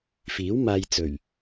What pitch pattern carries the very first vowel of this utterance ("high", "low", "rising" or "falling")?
rising